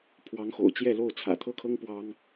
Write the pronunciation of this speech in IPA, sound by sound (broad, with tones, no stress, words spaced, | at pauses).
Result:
pʰwɑ˧˥ŋxo̰˨˩ʊ̯t͡ɕjɛ˥˧lo˥˩ʊ̯ t͡sʰä̰˨˩t̪ʰɤ˥kʰɤ˥ŋ pwɑ˥ŋ